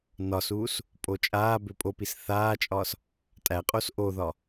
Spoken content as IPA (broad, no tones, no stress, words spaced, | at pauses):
nɒsuːs | pʼot͡ʃʼaː bøpʼopis θaːt͡ʃʼɒːs | tʼæqʼos ʔoðɒ